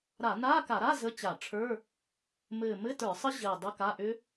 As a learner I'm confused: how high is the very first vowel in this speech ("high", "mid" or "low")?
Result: low